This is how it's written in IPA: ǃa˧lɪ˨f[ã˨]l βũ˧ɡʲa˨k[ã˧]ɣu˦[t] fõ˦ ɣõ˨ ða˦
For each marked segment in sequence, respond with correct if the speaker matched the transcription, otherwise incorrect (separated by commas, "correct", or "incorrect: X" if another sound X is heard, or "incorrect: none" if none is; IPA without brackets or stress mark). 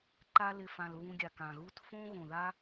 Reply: correct, incorrect: ã˨, correct